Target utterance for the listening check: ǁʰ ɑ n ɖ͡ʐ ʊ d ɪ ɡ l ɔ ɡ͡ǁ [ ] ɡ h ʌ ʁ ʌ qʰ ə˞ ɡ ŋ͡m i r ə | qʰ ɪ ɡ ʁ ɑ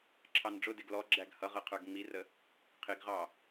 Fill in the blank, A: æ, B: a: A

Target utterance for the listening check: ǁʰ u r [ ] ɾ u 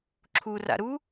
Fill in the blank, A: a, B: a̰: B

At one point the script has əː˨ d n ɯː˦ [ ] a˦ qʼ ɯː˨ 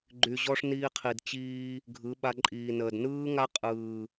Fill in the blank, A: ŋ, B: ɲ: A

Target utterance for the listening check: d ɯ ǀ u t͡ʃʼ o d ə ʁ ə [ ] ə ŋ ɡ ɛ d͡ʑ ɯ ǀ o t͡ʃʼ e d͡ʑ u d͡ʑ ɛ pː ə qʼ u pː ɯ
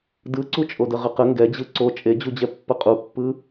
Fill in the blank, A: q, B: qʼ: A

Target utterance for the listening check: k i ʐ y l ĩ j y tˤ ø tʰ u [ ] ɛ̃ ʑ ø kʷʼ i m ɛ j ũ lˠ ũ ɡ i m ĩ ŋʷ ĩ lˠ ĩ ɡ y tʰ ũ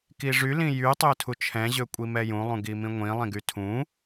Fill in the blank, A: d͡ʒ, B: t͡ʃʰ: B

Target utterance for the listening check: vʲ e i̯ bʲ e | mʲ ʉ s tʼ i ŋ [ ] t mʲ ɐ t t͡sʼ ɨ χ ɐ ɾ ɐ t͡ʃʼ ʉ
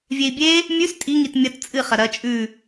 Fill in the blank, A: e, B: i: B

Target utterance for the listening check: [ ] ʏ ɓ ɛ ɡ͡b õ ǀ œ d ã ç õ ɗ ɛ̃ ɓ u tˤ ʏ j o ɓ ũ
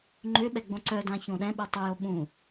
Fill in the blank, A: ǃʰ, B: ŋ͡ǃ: B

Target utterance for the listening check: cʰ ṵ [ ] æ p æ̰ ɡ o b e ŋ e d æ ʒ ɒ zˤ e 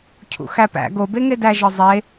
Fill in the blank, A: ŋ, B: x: B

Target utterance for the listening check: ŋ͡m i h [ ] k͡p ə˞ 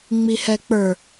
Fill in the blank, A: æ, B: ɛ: B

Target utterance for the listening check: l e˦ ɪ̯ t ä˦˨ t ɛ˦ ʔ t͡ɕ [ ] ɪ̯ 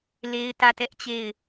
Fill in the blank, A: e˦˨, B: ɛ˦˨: A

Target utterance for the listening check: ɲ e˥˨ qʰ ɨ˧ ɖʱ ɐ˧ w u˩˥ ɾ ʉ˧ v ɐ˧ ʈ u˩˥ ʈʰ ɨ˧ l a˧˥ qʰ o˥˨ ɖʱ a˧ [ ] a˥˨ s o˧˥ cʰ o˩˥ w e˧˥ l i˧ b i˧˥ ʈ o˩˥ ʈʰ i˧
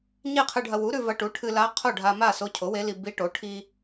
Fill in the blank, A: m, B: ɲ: A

